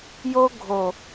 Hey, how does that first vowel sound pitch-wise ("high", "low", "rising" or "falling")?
high